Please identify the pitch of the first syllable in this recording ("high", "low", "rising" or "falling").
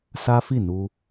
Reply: high